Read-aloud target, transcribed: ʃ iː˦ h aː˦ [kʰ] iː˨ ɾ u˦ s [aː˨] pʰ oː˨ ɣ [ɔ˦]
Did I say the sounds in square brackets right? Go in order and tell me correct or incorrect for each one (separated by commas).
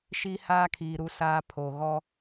correct, incorrect, correct